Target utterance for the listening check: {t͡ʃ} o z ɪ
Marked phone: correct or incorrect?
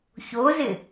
incorrect